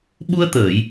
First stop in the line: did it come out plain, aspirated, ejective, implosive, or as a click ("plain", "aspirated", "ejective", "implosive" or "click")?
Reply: implosive